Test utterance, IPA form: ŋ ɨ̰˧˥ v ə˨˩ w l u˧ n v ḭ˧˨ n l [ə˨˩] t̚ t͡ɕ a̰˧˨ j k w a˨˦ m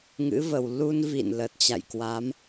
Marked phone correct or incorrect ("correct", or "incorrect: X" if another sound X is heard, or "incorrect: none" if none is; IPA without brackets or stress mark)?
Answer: correct